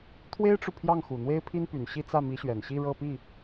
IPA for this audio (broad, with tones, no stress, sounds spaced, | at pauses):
t̪ʰ w e˥ ɪ̯ ʈ͡ʂ u˨ pʰ j ɑ˥˩ ŋ x u˨˩ n̪ w e˥ ɪ̯ pʰ i˥ n p y˨˩ n ɕ i˥˧ t͡s ä˥˩ m i˧˥ ɕ ɥ ɛ˨˩ n ɕ i˥˧ ɻ ɤ˥˧ p i˥˩